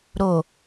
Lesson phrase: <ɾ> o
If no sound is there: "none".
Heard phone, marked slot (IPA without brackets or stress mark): ɾ